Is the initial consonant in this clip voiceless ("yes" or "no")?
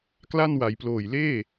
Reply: yes